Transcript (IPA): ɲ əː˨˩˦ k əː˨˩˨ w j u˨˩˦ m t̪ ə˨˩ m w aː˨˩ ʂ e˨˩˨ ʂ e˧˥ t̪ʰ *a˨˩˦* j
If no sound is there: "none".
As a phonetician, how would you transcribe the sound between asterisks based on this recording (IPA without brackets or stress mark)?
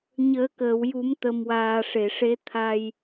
a˧